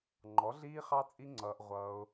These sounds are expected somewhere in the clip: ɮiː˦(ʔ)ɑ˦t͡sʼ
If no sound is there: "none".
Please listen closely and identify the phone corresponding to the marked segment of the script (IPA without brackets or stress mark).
χ